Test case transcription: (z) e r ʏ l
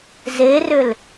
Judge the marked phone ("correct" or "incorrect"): correct